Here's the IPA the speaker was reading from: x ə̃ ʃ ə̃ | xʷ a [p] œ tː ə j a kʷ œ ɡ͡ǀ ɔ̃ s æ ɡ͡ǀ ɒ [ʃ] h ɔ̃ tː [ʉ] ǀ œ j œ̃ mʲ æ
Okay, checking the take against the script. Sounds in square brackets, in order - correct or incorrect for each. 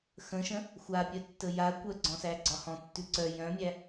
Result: incorrect, incorrect, correct

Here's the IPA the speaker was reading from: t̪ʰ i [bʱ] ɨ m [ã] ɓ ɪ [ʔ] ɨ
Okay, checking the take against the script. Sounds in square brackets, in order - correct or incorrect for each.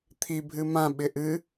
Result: correct, correct, correct

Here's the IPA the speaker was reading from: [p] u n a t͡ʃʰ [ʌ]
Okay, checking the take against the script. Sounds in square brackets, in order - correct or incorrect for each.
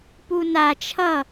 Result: correct, correct

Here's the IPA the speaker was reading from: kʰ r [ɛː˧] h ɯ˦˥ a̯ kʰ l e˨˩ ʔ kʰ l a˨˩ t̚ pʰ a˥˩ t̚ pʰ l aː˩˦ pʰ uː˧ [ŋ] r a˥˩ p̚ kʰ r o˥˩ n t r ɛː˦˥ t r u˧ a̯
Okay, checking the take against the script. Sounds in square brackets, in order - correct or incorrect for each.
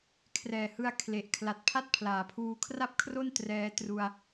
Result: incorrect, incorrect

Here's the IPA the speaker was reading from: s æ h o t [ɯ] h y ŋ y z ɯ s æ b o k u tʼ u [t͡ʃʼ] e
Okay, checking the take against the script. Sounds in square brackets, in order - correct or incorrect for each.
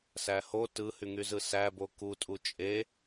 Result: correct, correct

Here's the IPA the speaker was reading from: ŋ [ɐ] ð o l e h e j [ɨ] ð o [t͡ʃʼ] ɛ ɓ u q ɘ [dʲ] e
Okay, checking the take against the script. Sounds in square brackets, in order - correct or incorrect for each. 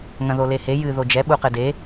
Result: incorrect, correct, incorrect, incorrect

